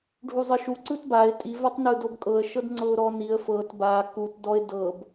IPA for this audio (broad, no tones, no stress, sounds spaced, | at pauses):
ɖʱ u zˤ ɯ ʃ u ǀ ɯ t b a ɪ̯ tʼ i v a tˤ n ɯ d o b kʼ ɤ ə̯ ʃ ɤ d ŋ͡ǀ ɤ ʊ̯ ɾ ɔ n i ə̯ f ɤ t b a k u t d ɔ ɪ̯ d ɤ b